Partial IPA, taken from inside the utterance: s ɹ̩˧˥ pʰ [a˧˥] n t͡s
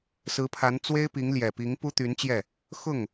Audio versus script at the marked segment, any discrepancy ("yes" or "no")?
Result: no